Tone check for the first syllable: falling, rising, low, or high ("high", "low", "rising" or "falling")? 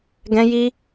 high